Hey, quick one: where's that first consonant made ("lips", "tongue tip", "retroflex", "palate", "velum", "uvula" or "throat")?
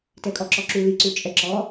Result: tongue tip